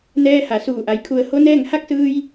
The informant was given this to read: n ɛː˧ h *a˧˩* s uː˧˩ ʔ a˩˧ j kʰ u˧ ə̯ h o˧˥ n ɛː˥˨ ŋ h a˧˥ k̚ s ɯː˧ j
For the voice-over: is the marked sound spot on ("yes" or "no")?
no